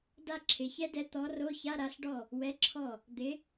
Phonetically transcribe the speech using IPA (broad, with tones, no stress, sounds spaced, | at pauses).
d a˥ ǁʰ ɪ˩˧˩ ç ɛ˥ d ɛ˨˥ t̪ ɔ˨˥ r o˧˥˧ ç a˧˥˧ ɾ a˨˥ ɬ ɖ ɔ˥˩ | w ɛ˨˥ ǁʰ ɔ˥˩ | d̪ ɪ˨˥